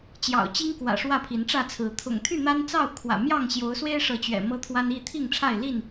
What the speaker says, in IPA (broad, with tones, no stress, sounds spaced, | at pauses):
t͡ɕ j ɑ̰˨˩ ʊ̯ t͡ɕ i˦ ŋ k w ä̰˨˩ ʂ w ä˥˨ pʰ i˨˦ n ʈ͡ʂ ä˥˨ t͡sʰ ɹ̩˨˦ t̪ʰ ʊ̰˨˩ ŋ t̪ʰ y˥˨ n̪ a˦ n t͡s ɑ˥˨ ʊ̯ kʰ w ä̰˨˩ m j ɑ˥˨ ŋ ɕ j o˨˦ ʊ̯ s w e˦ ɪ̯ ʂ ɤ˨˦ t͡ɕ ɥ ɛ̰˨˩ m ɤ˦ t̪ʰ w a˦ n i˥˨ t̪ʰ i˥˨ ŋ ʈ͡ʂʰ a˥˨ ɪ̯ l i˥˨ n